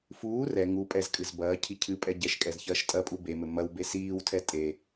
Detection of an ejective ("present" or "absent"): present